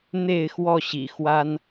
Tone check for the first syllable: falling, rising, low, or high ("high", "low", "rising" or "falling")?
falling